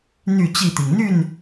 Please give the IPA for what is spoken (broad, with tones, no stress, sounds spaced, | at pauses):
n̪ y˥˨ t͡ɕ i˥˨ t̪ i˩ ŋ n̪ y˥˨ n